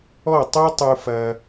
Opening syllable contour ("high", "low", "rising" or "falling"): falling